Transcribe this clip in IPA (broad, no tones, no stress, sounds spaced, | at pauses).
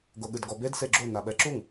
ɡ o ɠ ɨ d ɡ ɔ b e d s e ɡ͡ǁ o n a ɓ ɛ ǁ u ŋ